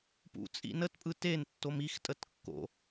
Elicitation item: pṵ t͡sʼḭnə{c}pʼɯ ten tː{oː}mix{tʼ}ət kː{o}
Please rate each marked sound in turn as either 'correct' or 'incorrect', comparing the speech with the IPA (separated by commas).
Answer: incorrect, incorrect, correct, incorrect